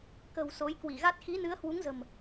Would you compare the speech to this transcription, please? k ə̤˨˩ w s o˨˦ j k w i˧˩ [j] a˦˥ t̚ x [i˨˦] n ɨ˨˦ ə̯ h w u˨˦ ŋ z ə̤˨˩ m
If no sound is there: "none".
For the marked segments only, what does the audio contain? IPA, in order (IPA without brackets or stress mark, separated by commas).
ɣ, i˨˦